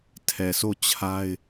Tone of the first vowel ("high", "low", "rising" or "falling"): low